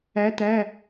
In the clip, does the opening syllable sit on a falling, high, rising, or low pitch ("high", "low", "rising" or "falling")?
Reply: rising